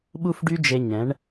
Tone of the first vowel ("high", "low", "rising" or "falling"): high